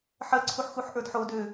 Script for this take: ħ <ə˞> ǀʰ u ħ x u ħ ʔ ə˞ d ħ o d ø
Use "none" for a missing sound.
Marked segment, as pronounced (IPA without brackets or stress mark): ɜ